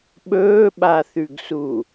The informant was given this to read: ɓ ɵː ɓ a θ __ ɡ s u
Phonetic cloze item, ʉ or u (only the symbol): ʉ